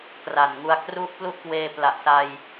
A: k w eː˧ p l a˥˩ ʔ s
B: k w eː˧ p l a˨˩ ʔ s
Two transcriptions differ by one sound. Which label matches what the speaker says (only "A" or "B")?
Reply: B